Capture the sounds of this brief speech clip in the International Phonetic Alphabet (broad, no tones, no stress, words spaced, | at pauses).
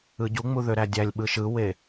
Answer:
ɯɟuŋ͡mu ðøɾædʲælʲɓɯ ʃɯwe